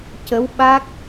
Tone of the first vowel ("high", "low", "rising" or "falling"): rising